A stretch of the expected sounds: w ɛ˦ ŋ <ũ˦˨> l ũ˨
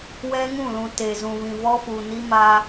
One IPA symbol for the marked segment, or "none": ũ˦˨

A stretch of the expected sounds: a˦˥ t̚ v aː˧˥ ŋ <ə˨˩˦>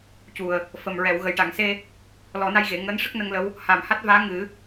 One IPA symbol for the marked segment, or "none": ɨ˨˩˦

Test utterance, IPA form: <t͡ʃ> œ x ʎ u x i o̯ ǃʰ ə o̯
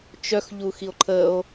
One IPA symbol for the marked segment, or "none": t͡ʃ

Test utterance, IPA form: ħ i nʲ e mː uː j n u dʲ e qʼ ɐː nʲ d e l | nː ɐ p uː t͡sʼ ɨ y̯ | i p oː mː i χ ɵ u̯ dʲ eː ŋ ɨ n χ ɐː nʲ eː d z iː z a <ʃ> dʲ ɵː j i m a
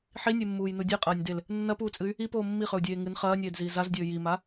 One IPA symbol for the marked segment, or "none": z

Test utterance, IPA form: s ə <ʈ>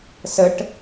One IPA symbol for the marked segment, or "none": ʈ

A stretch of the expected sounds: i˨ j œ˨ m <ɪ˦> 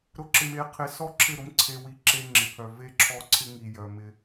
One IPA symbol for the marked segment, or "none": ɪ˦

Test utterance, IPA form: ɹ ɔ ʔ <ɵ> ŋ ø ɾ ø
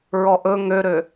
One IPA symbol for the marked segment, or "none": ɵ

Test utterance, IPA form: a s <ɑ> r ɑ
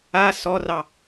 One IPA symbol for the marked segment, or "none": ɔ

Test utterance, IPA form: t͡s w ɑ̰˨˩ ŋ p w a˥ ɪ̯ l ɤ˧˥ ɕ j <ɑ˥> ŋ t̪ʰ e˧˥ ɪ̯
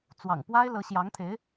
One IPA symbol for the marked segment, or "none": ɑ˧˥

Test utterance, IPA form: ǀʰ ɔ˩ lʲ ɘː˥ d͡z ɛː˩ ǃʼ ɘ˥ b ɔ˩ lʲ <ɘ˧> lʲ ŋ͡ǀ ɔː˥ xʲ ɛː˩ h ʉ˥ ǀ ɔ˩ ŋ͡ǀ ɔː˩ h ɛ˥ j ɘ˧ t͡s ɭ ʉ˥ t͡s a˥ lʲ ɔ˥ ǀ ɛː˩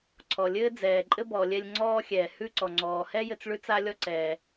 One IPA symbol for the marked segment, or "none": ɛ˧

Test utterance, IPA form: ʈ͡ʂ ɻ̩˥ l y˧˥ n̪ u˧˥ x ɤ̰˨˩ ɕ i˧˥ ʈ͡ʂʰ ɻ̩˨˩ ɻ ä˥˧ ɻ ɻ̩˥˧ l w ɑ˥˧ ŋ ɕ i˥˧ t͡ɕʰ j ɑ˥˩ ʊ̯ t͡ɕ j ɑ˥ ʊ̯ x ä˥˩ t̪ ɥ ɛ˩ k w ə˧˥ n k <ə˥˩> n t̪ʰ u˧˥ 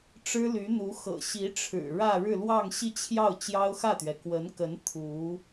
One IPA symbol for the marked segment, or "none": ə˧˥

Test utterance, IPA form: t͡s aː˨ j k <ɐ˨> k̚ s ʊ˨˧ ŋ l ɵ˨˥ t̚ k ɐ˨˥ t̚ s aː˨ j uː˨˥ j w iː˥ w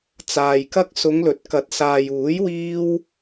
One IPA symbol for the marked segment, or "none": ɐ˥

